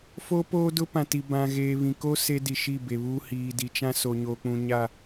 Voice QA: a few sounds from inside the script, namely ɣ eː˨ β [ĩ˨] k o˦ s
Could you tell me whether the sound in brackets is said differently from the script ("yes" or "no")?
no